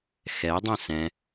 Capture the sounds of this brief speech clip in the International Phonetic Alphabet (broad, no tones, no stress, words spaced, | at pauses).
xɛdˤɛ̃ sɛ̃